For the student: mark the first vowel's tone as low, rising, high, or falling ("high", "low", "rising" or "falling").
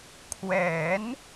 rising